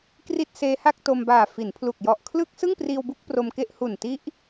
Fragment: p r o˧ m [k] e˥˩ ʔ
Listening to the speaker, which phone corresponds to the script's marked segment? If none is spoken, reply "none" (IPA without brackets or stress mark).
k